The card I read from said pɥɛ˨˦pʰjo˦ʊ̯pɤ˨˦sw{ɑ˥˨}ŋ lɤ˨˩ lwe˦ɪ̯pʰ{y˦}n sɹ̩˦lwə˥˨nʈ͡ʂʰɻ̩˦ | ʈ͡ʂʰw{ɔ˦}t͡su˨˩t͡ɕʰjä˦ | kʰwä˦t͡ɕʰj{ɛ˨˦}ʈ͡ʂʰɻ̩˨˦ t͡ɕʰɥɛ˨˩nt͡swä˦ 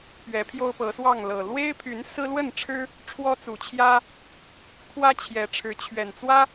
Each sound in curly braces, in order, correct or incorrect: correct, incorrect: y˨˦, correct, correct

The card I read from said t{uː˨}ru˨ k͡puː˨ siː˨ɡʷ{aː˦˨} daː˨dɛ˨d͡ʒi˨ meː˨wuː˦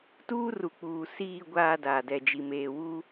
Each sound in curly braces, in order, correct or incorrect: incorrect: uː˦, incorrect: aː˨

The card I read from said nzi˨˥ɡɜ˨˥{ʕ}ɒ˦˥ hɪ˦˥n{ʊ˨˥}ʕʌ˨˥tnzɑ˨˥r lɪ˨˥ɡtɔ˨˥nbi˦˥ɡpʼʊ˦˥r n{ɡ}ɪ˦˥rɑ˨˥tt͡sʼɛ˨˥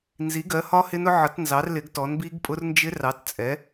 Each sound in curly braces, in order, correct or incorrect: incorrect: h, correct, incorrect: d͡ʒ

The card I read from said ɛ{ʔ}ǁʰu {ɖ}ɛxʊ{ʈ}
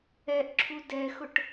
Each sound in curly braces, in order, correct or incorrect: correct, incorrect: d, correct

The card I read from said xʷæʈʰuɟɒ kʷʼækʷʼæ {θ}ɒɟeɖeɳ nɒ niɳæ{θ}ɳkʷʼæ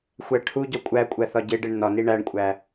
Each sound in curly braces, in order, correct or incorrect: correct, incorrect: none

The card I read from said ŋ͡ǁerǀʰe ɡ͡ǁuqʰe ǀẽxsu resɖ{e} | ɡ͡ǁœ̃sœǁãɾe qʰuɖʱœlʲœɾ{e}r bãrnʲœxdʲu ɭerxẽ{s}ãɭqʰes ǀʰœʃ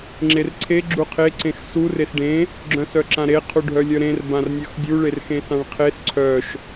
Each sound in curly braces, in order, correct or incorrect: incorrect: ẽ, incorrect: ẽ, correct

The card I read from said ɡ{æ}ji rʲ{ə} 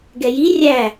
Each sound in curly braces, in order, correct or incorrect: incorrect: ɛ, incorrect: æ

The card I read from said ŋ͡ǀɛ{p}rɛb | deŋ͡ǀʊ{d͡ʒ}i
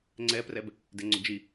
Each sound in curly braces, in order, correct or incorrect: correct, correct

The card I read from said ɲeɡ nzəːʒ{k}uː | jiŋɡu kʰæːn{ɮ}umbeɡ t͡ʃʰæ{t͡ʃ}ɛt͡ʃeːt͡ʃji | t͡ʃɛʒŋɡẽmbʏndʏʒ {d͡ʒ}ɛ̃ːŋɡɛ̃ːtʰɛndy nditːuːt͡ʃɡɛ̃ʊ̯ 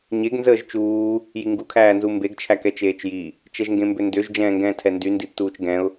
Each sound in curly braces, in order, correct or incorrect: incorrect: t͡ʃ, incorrect: z, incorrect: k, correct

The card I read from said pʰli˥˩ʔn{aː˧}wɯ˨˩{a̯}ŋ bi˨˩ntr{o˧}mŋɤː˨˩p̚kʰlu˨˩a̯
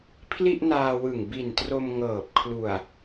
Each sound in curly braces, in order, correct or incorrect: correct, incorrect: none, correct

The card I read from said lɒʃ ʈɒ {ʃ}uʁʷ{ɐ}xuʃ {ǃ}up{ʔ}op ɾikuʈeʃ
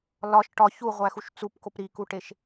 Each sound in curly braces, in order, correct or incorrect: incorrect: ç, incorrect: æ, incorrect: t͡s, incorrect: k

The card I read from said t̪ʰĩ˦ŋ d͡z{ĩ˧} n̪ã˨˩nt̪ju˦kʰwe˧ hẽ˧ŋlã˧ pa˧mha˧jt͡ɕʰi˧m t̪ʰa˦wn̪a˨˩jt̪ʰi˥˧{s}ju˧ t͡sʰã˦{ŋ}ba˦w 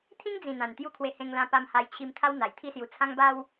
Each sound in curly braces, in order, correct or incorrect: incorrect: ĩ˨˩, correct, correct

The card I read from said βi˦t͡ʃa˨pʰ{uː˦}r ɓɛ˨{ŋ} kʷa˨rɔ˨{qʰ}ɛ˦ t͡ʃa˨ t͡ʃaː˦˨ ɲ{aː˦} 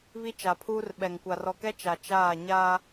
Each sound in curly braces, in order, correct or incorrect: correct, correct, incorrect: k, correct

